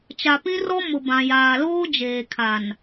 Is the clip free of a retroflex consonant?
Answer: yes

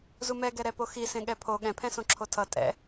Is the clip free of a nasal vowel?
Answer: no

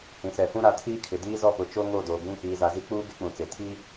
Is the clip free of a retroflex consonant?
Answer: yes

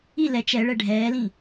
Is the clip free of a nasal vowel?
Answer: no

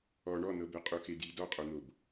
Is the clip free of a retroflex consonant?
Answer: no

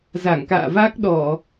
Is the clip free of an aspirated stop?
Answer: yes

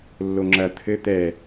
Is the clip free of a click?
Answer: no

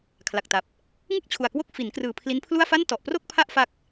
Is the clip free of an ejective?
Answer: yes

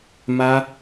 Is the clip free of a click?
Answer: yes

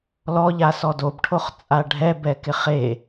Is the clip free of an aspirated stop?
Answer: no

